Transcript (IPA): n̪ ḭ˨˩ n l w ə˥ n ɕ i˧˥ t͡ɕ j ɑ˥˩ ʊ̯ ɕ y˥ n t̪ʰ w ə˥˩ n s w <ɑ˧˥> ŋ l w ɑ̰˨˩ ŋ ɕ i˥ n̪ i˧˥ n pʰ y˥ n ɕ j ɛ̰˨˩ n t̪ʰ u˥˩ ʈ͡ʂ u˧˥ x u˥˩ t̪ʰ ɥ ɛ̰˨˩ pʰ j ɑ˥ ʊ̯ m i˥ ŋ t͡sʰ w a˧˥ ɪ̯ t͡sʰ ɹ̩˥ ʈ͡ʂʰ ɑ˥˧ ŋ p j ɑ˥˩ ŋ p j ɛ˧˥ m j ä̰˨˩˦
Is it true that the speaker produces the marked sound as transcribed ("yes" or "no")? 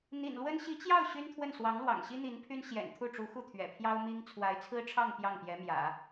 yes